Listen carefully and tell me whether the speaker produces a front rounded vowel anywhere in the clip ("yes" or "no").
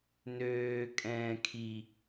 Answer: yes